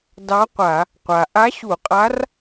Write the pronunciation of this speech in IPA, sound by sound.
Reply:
d ɑ˧˥ qʷ a˧˩˧ | qʷ a˩ ʔ a˧˥ ɕ u˧˩˧ qʼ a˧˥ r

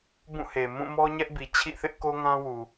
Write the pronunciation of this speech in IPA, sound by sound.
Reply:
b ũ˦˨ h e˨ m ũ˦˨ m ɔ˦ ɲ ɛ˦ ʔ b i˨ t͡ɕʰ ḭ˦˨ θ ɪ˦ ʔ k o˦ ŋ ã˦ w u˨

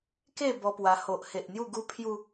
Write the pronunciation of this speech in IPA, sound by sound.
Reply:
k e˥˧ b ɔ˦ p w a˧ h o˨ ʔ h e˨ ʔ n̪ j u˥˧ ɡ u˦ pʰ j u˧

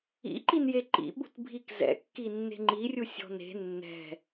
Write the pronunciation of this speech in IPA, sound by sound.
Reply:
ḭ ǃ i n j e ǃ ḭ ɓ ṳ t bʱ i k z ɛ̰ kː i nː e̤ ŋ͡ǃ i rʲ u sʲ ɔ̤ n e̤ nː ɛ̤

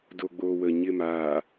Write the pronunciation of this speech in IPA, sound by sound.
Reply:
d o ɡ͡b o w ə ɲ ɪ m aː

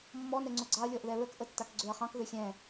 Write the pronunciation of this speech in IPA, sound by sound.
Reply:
mː ɔ n ɛ ŋ͡ǀ o ɡ͡ǀ ɑ ɐ̯ lʲ ɔ ʔ ð ɛ ɹ ə k ʔ ə tː a k ɡ͡ǀ ø ɐ̯ χ ɑ̃ k ð ø xʲ ɛ̃

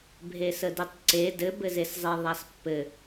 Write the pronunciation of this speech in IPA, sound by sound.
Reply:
bʱ e s ə d e tˤ ǀ e d ɘ b ɘ z e s zˤ e ðˤ a s pː ɘ

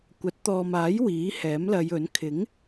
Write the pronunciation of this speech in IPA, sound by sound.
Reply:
kʷ ɐ˨˥ t̚ t̪ ɔː˨ m aː˨˥ j w iː˨˥ h ɛː˨˥ m l ɐ˨˧ j ɵ˨˥ n kʰ ɪ˨˥ ŋ

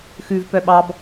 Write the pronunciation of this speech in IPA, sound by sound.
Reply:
x ʉ v p œ ɓ ɑ b

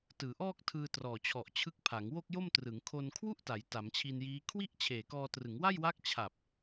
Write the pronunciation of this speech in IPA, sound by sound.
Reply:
t ɯː˩˦ ʔ ɔː˥˩ k̚ tʰ ɯː˧ t r ɔː˨˩ t͡ɕʰ ɔ˨˩ ʔ t͡ɕʰ ɯ˦˥ k̚ pʰ a˩˦ ŋ w o˥˩ k̚ j o˥˩ m t r ɯ˩˦ ŋ kʰ o˧ n kʰ w u˥˩ ʔ t a˩˦ j t a˩˦ m t͡ɕʰ i˧ n j iː˦˥ kʰ w i˥˩ ʔ t͡ɕʰ eː˨˩ k ɔː˧ t r ɯ˩˦ ŋ w a˥˩ j w a˦˥ k̚ t͡ɕʰ a˨˩ p̚

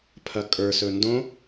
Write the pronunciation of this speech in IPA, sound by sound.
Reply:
pʰ ɐ kʼ ə˞ s ɵ n d õ

